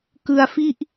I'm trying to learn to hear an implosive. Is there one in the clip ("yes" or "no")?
no